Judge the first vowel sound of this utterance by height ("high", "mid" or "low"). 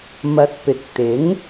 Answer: low